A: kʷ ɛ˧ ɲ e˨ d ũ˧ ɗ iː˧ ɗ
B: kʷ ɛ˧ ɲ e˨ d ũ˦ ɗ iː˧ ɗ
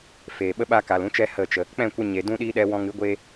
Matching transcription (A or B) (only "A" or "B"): A